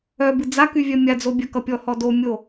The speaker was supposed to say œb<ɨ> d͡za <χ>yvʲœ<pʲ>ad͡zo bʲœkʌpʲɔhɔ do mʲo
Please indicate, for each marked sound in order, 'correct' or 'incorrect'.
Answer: correct, incorrect: k, incorrect: mʲ

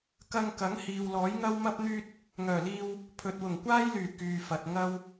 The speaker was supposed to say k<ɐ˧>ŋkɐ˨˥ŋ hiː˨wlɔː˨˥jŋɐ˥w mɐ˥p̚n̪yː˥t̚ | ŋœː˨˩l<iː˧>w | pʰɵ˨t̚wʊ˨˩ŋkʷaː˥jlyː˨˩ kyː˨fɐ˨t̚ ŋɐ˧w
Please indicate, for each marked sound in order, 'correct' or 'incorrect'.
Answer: correct, correct

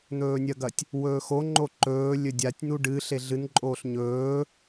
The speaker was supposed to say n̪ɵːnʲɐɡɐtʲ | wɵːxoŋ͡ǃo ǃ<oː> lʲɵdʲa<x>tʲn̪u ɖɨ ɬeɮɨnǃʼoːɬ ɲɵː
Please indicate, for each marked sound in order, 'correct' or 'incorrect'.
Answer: incorrect: ɵː, incorrect: none

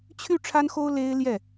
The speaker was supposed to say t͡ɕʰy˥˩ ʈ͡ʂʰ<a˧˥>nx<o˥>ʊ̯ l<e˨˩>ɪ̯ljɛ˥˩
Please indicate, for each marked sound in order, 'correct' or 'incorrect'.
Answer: incorrect: a˥, correct, incorrect: e˥

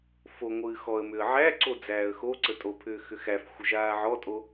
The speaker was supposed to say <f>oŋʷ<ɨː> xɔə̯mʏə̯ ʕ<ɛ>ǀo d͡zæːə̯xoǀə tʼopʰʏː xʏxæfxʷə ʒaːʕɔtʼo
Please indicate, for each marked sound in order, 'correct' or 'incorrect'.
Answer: correct, correct, incorrect: æ

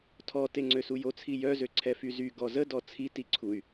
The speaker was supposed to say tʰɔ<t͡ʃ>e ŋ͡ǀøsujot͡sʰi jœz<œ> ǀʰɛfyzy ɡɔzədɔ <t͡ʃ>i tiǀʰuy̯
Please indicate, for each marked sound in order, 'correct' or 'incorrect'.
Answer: incorrect: t, incorrect: ø, incorrect: t͡sʰ

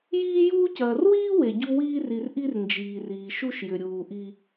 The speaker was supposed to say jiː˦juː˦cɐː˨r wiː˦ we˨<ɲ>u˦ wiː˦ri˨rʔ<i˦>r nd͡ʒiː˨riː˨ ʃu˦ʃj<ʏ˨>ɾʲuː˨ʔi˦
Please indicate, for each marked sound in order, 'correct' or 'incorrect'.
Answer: incorrect: ɟ, correct, correct

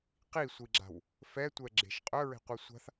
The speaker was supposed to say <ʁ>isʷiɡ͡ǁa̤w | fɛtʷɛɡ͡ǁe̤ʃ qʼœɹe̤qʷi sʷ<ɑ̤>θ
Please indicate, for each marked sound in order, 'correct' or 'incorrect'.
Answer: incorrect: q, incorrect: a̤

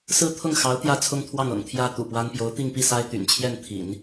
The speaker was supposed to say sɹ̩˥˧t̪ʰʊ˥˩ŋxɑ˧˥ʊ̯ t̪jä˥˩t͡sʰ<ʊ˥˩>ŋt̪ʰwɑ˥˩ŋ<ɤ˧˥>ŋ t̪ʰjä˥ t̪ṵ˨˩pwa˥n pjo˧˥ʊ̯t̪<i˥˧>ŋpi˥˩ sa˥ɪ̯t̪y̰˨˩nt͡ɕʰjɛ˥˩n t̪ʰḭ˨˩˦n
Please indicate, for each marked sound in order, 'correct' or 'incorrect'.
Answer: incorrect: ʊ˥, incorrect: ɤ̰˨˩, correct

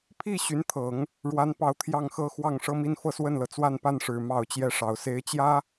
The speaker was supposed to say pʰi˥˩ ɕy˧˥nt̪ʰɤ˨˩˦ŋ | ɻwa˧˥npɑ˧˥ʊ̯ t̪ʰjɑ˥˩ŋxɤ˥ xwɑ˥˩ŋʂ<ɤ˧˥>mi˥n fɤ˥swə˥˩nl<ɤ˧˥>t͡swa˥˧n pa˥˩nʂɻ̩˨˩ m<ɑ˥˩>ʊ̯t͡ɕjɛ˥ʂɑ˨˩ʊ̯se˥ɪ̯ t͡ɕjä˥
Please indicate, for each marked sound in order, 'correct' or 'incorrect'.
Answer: incorrect: ɤ˥, incorrect: ɤ˩, correct

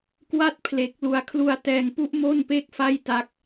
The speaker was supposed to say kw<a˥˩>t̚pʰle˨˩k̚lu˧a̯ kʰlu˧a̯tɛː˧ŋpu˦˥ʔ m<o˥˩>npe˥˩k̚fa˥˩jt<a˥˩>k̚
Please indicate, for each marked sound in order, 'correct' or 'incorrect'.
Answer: correct, correct, incorrect: a˦˥

